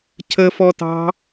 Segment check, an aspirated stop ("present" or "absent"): present